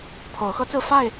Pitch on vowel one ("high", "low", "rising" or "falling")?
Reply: rising